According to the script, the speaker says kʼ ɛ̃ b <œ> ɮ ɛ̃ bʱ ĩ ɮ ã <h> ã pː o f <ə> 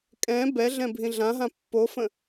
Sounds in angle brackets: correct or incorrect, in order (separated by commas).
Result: incorrect, incorrect, incorrect